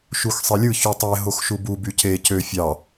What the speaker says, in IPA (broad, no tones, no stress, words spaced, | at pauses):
ʃuxsˤelʲɯ çytˤe ɦoxʃubu byce cø fʲɑ